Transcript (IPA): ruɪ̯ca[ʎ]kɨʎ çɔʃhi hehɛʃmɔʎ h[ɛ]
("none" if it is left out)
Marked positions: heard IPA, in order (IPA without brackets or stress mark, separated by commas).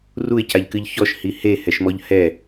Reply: ʎ, ɛ